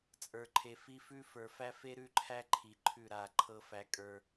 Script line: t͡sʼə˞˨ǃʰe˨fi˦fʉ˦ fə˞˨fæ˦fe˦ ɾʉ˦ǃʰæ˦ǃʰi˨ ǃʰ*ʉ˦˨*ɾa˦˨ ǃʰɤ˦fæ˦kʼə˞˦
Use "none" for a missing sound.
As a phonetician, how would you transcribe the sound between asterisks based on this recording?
ʉ˦˨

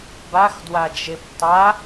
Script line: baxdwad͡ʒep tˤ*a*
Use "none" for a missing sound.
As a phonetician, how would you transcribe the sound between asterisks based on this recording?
a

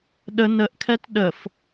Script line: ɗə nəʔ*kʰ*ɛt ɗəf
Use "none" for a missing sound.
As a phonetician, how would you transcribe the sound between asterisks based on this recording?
kʰ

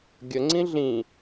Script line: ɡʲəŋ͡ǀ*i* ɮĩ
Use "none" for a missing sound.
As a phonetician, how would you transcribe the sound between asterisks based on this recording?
ĩ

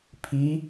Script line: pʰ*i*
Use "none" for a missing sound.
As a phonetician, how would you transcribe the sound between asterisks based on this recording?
i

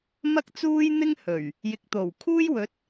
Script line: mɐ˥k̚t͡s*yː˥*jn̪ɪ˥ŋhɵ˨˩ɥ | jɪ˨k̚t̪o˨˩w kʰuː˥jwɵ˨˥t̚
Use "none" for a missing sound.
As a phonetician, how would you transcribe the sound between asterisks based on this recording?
uː˥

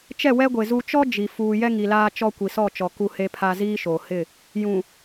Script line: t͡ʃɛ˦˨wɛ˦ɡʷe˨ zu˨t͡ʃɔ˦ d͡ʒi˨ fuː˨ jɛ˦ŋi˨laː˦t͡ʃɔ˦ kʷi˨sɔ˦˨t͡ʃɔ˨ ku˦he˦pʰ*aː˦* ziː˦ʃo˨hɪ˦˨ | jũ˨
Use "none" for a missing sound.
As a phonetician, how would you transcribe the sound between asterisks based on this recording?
a˦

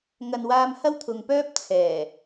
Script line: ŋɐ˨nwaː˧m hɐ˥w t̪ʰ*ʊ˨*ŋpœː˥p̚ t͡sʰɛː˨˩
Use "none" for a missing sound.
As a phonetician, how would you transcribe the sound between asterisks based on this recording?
ʊ˨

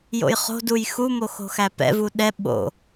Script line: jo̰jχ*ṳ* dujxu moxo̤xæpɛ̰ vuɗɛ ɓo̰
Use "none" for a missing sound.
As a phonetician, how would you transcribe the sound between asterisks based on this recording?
o̤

